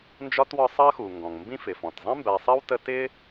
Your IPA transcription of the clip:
n d͡ʒ ɒ˥ t w ɒ˦ sˤ ɜ˥ x u˩ ŋ ɡ ɔ̃˩ ŋ m b ĩ˥ f ɪ˩ f ɔ̃˩ t zˤ ĩ˥ m b æ˨ sˤ ɜ˥ w t ə˦ t ɪ˦

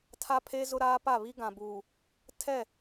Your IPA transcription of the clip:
tʰ a˦ pʰ e˦ z ʊ˦ ɾ aː˦ p a˦˨ β i˦ ɡ ã˨ b uː˨ | tʰ ɛ˦˨

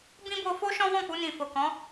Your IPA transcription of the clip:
b ĩ˦ b o˧ f o˦ ʃ ɔ̃˦ w ɔ̃˦˨ k͡p u˧ n ĩ˨ f o˨ k ɔ̃˨˦

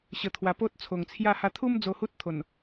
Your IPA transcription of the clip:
ɕ ə˧ t̪ʰ w a˧ p o˦ t̚ t͡sʰ o˨˩ ŋ t͡sʰ j a˥˧ h a˧ t̪ʰ u˦ m d͡z o˧ h u˦ t̚ t̪ʰ o˨˩ n

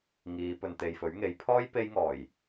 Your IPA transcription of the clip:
ŋ iː˨˧ p ɵ˨ n t̪ e˨ j f ɵ˨˥ ɥ ŋ e˨˥ j pʰ ɔː˥ j p e˥ j ŋ ɔː˨˩ j

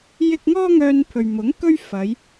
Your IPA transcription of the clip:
j ɪ˥ k̚ ŋ ɔː˥ ŋ œː˧ n pʰ ɵ˨ ɥ m ʊ˨˥ ŋ k ɵ˥ ɥ f ɐ˨˧ j

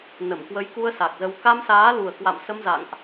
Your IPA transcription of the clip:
n ə˧˩ m k w ə˨˦ j k u˧ ə̯ s a˨˩ k̚ z ə˧ w k a˧ m s aː˨˦ l u˨˩ ə̯ k w a̰˧˨ m s ə˧ m z a̰˧˨ ŋ ʔ

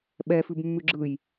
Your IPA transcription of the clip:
ɓ ɛ f ʉ b mː ʉ ɡ͡ǁ ɯ j

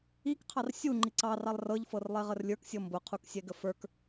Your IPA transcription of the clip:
i k qʰ ɑ r sʲ u ŋ͡ǃ i ǀ ɑ r ɑ lˠ r ɤ ʎ f ɤ r lˠ e ʁ ə r lʲ ə˞ k sʲ ɤ m b ʊ qʰ u k sʲ ɛ ɡ ə f ə˞ k

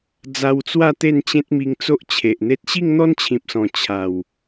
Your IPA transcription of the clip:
d͡z a˧ w t͡s w a˥˧ t̪ e˥˧ n t͡ɕ ẽ˦ t̚ m i˧ ŋ t͡s o˦ ʔ t͡ɕʰ e˨ ʔ n̪ e˦ t̚ ɕ i˥˧ ŋ n̪ ɔ˦ n t͡ɕʰ ĩ˨ p̚ s ɔ̃˨˩ t͡ɕʰ a˨˩ w

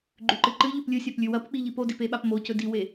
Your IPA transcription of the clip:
ɡ͡ǃ ʉ ǃ ɨ ǃ ɨ ʎ ʉ p lʲ ɨ sʲ a p lʲ ʉ w ɐ p k͡p i ʎ i p o d i p e ɓ a p m o c ɵ d i w e

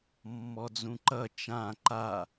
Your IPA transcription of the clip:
mː ɔ d͡z ũ ǃ ʌ t͡ʃ ã ǃ a

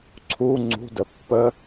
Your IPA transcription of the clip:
ǀʰ u ŋ͡ǀ ṳ d ə pː ə

